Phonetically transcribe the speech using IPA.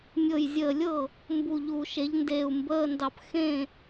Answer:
mʲɤ˧˩jzʲəː˧˩lʲɤ˥˩ | mbu˧˩ʎu˧˩˧ʃe˩˥ʎndeː˧˩u̯ mbəː˧˥˧ndɑ˧˩p xẽ˥˩

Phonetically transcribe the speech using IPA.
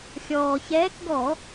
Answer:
xʲɔː˩çɛː˨˦kɡɔ˧˩˧

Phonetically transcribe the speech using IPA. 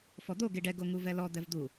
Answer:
fɔd̪o ɡeɖɛ ɡoŋuvɛlɔ d̪ɛvd̪u

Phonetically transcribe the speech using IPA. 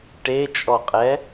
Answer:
ʈet͡ʃʼɔqʼɛ

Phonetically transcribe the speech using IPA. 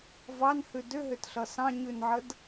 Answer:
vɑnhʉ dʏɦʏtɬʌ sɑ̃ɲʉnʕəd

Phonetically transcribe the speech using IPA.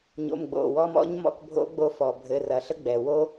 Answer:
ɲo̰˩˧˩mɡ͡bo̰˩˧˩wɔ˧m ɔ̰˦˥ɲmɔ̰˧k bʱo̰˦˥ɡ͡bo˧fɔ˩bʱɘ˩˧˩ rɐ˩ɬə˦˥ɡ͡bɛ˩ wo˦˥

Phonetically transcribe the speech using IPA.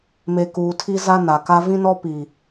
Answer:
me˨ kuː˨tʰi˦za˦ na˨ka˦ vĩ˦nɔ˦ pi˨

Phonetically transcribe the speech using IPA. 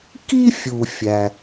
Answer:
ki˥fʲu˩ fʲæ˩

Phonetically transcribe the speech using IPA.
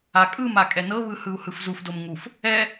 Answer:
akʼɯma kʼɛnɤβɯ hɯu̯hɯfzufdom ŋuf | ɛ

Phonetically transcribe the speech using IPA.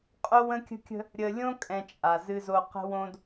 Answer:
qʼo˦wə̃˦kʲə̤˦kʲə̤˦ | ɾʲə˨lʲõ˦kʼɛ̃˨ t͡ʃʼa˨zɨ˦zo˦ qə̤˦wõ˦d

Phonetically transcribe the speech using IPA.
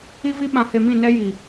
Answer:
i˦vi˦ ɓã˨he˨mĩ˦˨nɛ˦ ji˨

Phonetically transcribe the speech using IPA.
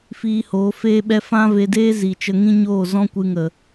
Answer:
fiː˧hoː˨˦feː˦ɓɛ˦ fã˦ve˧deː˦ zi˨ t͡ʃə˧ŋĩ˦ɲoː˦˨ zɔ̃˦kʷɨ˧ŋə˨

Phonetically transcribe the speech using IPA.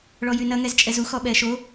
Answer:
ɭɔjynɐ ŋɛzt͡ʃʼɛzu xɔɓɛːʃo

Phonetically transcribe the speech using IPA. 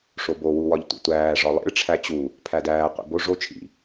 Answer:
ʂobo wuwɒʎtʷḭtʷæː ʐɒlˠḭɭ ʈ͡ʂʰæt͡ɕu | pʰædæː qʷḭbo ʐo t͡ʃʰḭ

